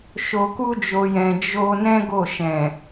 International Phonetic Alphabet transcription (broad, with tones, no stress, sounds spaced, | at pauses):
ʃ o˧ k u˦ d͡ʒ o˧ j ɛ̃˧ d͡ʒ o˦ n ɛ̃˦ ɡ o˦˨ ʃ ɛ̃˨